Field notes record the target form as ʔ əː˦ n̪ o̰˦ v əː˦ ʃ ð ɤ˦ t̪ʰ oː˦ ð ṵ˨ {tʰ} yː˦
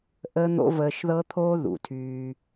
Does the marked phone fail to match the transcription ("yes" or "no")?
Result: no